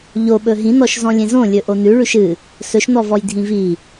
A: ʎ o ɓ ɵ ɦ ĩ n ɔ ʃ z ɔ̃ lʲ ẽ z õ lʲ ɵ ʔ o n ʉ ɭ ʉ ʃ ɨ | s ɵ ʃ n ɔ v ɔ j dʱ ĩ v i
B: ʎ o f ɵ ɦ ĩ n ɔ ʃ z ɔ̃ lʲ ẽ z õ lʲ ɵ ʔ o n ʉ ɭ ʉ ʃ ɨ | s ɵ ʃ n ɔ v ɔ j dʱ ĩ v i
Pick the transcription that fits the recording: A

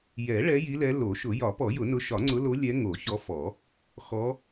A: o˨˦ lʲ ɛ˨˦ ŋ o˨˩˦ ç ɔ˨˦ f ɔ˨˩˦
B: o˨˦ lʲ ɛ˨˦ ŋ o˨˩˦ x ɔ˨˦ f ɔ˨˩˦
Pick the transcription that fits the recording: A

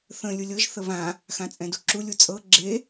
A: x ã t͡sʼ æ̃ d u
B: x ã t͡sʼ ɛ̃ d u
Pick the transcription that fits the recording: B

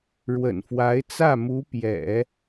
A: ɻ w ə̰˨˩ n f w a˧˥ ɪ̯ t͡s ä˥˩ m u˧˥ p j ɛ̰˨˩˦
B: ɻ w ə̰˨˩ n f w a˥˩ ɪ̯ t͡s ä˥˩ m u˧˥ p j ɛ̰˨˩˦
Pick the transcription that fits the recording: A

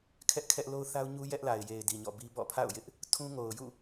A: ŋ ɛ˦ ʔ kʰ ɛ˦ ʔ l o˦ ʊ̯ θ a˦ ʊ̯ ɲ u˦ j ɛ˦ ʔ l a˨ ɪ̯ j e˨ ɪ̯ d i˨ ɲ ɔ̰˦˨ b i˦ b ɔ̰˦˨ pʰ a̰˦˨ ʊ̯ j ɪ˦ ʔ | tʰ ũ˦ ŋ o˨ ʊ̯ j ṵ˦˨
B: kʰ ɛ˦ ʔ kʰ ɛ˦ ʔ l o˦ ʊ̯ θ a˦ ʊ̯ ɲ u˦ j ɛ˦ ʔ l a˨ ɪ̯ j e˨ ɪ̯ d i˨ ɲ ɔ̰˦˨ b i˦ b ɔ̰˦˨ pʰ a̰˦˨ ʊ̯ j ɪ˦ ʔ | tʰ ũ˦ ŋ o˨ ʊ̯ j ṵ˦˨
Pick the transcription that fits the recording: B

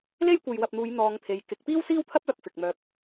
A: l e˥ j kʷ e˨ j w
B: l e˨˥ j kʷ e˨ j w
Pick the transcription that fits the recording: A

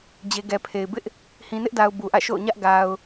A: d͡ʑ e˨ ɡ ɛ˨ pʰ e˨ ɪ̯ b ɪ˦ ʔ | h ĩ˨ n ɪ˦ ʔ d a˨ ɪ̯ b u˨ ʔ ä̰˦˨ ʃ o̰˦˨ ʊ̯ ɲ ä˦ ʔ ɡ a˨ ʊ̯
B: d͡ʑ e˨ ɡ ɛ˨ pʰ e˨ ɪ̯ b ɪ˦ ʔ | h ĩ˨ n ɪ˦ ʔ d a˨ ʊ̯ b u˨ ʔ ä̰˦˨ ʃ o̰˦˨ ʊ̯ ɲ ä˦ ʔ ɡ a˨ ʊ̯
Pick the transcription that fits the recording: B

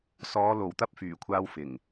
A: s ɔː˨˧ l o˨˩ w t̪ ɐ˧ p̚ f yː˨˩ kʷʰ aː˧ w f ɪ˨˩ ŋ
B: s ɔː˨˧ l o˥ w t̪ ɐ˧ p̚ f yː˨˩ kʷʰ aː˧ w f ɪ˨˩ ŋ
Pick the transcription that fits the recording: A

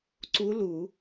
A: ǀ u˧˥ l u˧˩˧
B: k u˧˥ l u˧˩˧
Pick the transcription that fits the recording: A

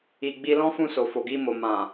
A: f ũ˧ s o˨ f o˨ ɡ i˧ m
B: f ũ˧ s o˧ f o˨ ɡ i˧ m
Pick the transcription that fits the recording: A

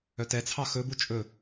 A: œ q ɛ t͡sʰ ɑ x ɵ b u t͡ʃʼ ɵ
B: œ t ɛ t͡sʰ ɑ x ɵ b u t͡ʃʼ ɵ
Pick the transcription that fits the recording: B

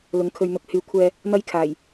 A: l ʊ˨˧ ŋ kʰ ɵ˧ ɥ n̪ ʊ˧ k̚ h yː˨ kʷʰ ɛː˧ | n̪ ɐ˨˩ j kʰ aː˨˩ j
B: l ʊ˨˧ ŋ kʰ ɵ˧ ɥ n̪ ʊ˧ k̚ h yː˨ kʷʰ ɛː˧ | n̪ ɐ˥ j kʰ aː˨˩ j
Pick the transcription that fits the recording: B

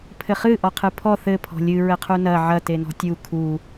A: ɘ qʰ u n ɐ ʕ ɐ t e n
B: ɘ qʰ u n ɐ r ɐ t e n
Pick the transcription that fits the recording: A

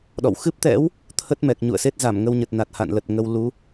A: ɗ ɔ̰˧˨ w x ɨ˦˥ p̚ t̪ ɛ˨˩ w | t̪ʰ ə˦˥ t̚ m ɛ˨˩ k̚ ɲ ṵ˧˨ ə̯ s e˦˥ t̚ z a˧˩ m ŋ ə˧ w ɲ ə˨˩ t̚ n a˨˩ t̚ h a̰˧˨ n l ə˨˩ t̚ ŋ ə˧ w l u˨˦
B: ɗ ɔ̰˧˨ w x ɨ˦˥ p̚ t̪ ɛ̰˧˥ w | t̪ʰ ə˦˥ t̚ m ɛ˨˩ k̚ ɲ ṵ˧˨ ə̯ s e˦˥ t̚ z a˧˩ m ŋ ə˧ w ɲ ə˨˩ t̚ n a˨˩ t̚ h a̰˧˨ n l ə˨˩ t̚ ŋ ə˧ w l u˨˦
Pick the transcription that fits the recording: B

